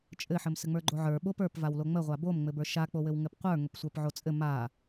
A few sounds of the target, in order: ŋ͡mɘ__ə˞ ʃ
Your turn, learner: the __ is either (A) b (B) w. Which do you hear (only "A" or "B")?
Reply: A